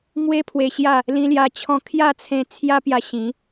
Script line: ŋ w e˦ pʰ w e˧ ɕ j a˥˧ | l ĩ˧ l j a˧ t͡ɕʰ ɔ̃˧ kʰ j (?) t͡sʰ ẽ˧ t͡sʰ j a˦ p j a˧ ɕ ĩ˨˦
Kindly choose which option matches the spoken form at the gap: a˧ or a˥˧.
a˥˧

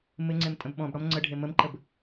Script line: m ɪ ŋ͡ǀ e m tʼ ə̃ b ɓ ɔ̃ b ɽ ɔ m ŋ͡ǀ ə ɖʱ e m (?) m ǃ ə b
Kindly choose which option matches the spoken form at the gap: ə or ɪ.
ə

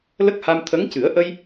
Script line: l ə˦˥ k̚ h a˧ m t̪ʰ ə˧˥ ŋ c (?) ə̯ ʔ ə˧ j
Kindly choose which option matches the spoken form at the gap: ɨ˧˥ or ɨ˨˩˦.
ɨ˨˩˦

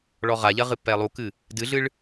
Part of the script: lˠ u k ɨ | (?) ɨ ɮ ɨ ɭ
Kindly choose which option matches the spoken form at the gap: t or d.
d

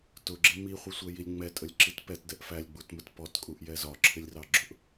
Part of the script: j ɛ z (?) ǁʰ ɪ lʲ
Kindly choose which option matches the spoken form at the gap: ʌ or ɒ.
ɒ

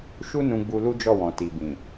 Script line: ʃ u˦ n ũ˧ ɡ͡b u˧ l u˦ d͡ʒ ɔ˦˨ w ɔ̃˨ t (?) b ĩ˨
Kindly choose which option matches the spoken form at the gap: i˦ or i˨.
i˨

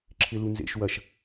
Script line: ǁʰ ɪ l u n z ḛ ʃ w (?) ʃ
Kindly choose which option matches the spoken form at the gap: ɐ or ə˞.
ɐ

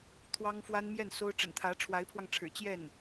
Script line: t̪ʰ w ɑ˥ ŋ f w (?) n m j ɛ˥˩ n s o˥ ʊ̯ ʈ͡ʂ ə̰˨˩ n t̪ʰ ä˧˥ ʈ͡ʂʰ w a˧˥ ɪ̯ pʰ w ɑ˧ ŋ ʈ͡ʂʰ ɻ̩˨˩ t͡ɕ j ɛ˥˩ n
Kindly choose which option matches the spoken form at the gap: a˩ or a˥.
a˥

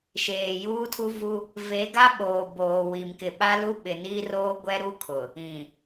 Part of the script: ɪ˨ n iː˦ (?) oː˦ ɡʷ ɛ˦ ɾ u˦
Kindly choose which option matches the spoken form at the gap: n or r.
r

